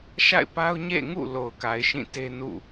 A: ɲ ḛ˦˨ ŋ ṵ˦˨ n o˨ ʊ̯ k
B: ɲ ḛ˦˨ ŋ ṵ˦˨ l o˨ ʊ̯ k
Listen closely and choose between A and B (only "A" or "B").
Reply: B